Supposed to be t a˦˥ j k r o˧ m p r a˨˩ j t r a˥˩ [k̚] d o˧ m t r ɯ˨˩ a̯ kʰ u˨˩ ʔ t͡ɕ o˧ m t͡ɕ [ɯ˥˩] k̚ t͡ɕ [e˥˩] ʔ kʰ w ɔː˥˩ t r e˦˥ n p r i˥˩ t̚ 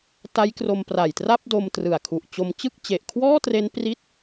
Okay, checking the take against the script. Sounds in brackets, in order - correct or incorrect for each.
incorrect: p̚, correct, incorrect: e˨˩

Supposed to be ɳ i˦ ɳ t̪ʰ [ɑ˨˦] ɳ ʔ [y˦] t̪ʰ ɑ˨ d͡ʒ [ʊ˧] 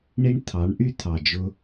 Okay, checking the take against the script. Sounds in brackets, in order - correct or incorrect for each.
correct, correct, correct

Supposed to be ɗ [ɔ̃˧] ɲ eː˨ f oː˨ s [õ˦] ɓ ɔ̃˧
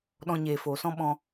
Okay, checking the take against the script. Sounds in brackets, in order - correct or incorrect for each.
correct, incorrect: ɔ̃˦

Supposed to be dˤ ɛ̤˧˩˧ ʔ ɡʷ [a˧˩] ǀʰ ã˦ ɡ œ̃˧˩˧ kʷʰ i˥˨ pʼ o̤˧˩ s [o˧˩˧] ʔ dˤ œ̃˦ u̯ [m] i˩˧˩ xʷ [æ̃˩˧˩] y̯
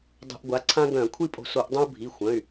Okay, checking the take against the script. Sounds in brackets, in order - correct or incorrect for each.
incorrect: a˩˥, correct, incorrect: bʱ, incorrect: œ̃˩˧˩

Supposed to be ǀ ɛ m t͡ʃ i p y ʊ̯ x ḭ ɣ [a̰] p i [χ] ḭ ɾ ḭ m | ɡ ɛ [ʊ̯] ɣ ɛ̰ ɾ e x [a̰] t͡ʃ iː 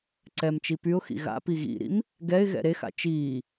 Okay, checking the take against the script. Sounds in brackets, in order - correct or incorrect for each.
correct, incorrect: ɣ, incorrect: ɪ̯, correct

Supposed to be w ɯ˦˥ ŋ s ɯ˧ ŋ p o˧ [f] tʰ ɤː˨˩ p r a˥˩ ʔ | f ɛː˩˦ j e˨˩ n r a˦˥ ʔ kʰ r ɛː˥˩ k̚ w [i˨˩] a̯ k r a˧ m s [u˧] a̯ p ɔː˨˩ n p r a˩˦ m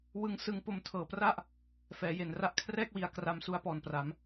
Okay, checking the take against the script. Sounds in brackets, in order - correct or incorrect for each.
incorrect: m, correct, correct

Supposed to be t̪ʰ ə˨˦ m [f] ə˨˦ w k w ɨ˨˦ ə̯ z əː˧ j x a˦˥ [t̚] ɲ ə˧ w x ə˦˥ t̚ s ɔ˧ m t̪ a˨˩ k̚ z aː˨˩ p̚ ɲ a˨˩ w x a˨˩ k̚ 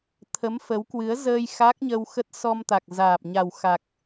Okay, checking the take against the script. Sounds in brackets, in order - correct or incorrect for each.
correct, incorrect: k̚

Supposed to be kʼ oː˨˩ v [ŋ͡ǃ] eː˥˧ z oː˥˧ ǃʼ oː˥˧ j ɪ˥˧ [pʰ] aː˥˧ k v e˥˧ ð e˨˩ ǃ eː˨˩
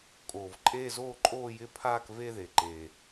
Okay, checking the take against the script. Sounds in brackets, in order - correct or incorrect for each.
incorrect: ǃʼ, correct

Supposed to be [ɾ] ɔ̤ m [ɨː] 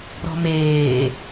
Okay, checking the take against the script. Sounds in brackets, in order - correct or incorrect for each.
correct, incorrect: eː

